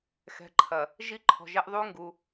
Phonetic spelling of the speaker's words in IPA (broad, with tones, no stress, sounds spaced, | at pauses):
x ɛ̤˨˦ ǃʰ ɐ˨ | ʒ i˦ ǃʰ ɔ̤˨ ʒ ɛ˦ ʔ ðˤ u˦ ŋ ɡ u˦